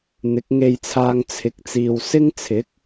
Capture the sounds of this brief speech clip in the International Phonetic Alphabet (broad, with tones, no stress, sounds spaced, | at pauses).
n̪ ɪ˨˥ k̚ ŋ e˧ j t͡sʰ aː˧ ŋ t͡sʰ ɪ˨˥ k̚ t͡s iː˨ w s ɪ˥ ŋ t͡sʰ ɪ˨˥ k̚